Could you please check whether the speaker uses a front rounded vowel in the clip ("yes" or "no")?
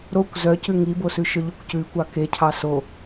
yes